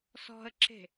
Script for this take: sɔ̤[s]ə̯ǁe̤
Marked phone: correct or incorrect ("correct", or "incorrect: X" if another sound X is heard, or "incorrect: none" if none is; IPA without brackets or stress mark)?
incorrect: none